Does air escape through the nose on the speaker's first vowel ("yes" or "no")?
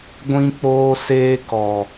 yes